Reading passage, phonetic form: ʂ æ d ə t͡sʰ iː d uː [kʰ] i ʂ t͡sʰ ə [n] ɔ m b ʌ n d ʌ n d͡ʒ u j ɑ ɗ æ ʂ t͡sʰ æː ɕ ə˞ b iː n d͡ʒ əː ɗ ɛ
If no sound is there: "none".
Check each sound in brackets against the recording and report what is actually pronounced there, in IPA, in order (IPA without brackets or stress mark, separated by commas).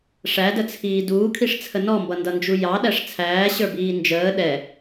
kʰ, n